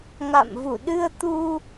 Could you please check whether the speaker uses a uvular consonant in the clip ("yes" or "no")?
no